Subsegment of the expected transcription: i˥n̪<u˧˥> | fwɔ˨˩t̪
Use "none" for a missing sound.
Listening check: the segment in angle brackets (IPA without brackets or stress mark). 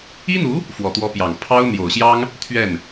u˧˥